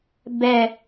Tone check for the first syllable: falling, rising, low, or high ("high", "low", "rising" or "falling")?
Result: low